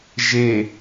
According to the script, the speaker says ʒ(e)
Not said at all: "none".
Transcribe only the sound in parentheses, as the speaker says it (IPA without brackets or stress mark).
e